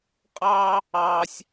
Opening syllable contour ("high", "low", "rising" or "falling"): high